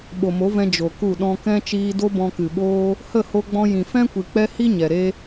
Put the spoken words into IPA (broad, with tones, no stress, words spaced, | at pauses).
ɓo˨mo˨˦vɛ̃˧ d͡ʒo˨ku˦˨ ɗɔ̃˧kɛ̃˦ t͡ʃiː˧do˦ bɔ̃˧kɨ˨ɓoː˦ | hə˦˨ho˧ɡ͡bɔ̃˧ jĩ˨fɛ̃˦ kʷi˨k͡pɛ˦ hi˦ ɲɛ˨ɾe˦